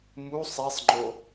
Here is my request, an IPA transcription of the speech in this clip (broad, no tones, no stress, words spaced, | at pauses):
mu sˤisˤŋ͡ǃo